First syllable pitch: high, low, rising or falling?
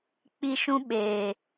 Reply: high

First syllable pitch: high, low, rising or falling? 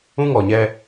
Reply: high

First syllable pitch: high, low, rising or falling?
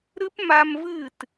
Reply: high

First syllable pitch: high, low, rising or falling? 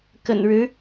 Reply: low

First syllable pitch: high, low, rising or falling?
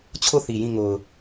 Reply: falling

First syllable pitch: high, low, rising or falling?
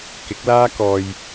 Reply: rising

